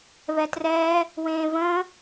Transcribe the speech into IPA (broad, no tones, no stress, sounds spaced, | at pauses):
β ɛ t r ɛː | w ẽː v ə̃ː